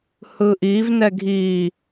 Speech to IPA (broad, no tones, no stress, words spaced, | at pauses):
hɯʔivnɛ ɡʱi